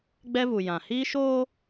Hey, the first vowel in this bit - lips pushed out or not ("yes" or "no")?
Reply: no